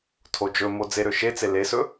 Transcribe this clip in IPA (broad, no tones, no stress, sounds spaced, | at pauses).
tʰ o d͡ʒ ɵ m o d͡z e ɾ ø ʃ e t͡s e l e s ɵ